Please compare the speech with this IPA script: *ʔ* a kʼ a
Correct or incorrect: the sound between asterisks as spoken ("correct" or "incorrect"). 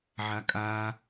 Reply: incorrect